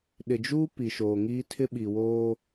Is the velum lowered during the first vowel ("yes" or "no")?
no